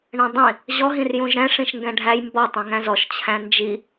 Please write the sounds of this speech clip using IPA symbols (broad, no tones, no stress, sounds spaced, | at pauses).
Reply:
ɳ ə̃ dˤ ĩ | ʑ ɔ ɦ ĩ r j ũ ʒ ɾ ɛ̃ ʂ ĩ ʃ ŋ ɡ ɛ̃ ɖʱ æ j m b ɔ tˤ ĩ ŋ æ̃ z ɔ ʃ t͡ɕʰ æ̃ n d͡ʒ i